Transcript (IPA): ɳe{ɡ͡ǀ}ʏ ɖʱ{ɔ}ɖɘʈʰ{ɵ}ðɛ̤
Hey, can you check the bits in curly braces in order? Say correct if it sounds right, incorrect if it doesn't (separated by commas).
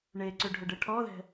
incorrect, incorrect, incorrect